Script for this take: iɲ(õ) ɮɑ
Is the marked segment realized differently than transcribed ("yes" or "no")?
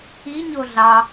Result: yes